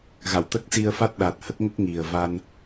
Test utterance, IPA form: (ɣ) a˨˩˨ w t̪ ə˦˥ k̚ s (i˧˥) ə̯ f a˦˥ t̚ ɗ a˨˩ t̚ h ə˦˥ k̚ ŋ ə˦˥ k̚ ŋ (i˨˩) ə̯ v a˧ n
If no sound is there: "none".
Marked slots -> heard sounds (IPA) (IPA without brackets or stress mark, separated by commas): ɣ, i˧, i˨˩